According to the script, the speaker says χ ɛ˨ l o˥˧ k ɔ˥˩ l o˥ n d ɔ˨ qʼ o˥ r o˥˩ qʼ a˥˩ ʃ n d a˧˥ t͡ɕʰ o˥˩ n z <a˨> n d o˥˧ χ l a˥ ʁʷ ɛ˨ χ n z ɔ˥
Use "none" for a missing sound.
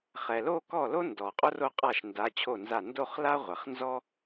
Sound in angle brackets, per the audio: a˥˩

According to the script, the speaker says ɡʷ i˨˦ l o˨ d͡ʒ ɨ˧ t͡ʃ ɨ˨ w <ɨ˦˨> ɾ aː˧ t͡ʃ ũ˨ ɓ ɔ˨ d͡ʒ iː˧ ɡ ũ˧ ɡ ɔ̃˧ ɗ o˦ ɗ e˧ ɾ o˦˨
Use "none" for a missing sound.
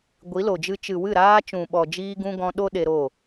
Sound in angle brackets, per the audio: ɨ˦˨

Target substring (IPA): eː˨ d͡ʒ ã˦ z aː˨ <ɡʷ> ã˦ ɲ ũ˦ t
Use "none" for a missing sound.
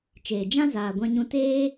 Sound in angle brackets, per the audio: ɡʷ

